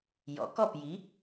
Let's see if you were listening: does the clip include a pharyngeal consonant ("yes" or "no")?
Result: no